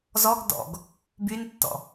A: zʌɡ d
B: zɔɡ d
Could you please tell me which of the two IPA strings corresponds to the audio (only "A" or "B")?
B